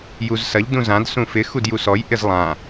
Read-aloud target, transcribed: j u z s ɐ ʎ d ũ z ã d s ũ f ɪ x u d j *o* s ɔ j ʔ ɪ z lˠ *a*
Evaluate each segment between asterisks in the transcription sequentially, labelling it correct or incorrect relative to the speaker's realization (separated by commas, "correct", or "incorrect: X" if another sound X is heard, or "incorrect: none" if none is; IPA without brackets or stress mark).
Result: incorrect: u, incorrect: ã